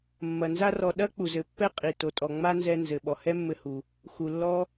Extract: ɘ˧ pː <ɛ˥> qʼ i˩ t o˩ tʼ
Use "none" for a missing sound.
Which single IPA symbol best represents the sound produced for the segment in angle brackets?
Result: ɛ˥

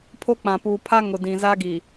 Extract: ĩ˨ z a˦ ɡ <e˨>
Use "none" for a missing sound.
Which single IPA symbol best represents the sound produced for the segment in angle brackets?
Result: i˨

